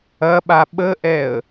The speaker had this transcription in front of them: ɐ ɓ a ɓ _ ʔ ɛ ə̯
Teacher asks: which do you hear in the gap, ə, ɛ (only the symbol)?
ə